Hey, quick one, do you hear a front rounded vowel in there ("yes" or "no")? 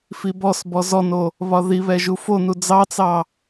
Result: no